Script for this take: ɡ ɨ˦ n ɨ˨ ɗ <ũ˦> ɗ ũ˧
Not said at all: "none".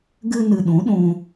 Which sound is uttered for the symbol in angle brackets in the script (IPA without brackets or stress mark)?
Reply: ũ˨˦